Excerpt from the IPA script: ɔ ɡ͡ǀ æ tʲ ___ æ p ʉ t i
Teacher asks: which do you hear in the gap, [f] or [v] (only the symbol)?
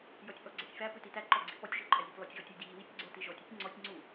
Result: f